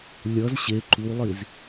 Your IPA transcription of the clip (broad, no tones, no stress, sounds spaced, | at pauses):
lʲ ʌ z ɕ e ǃ u lˠ i z